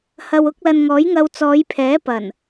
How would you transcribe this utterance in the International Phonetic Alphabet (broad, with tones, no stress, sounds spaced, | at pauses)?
h ɐ˨ w ʊ˧ k̚ l ɐ˨ n ŋ ɔː˨˥ j ŋ ɐ˧ w t͡s ɔː˨˧ j pʰ ɛː˨˥ p ɐ˨˩ n